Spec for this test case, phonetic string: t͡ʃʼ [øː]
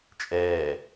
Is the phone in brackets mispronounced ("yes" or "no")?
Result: yes